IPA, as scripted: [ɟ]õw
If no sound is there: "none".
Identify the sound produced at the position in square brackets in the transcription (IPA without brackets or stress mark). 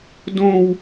d